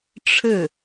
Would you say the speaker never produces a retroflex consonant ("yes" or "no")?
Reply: no